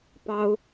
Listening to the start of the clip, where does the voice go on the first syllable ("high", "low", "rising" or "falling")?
high